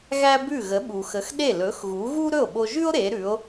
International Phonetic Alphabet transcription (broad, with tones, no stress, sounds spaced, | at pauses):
ɣ æ˥ b ʉ˥˩ ɣ ə˩˥ ɓ u˩ x ə˩˥ x ɗ e˥˩ l ɵ˩˥ x ɣ u˩˥ ɣ u˥ ɾ ɵ˥˩ o̯ ɓ o˧ ʒ ʉ˥ o̯ ɾ e˩˥ ɾ ʉ˩˥ o̯